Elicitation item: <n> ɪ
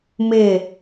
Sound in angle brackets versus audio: incorrect: m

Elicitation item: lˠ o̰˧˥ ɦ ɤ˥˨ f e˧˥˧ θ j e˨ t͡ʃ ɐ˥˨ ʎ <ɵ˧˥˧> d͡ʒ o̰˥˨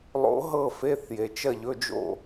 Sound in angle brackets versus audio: correct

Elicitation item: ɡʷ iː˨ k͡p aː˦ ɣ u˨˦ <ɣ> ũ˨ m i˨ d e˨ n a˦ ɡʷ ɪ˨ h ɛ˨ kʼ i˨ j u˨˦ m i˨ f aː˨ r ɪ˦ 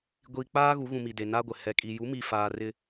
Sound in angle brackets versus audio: correct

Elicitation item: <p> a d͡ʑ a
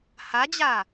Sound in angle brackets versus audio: incorrect: h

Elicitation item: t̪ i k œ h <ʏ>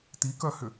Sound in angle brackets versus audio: correct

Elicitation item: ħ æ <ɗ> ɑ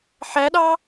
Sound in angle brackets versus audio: correct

